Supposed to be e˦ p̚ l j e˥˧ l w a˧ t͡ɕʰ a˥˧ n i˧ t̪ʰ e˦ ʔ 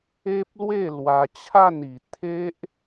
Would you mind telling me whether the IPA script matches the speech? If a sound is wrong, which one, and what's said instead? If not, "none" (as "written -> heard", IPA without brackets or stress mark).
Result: j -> w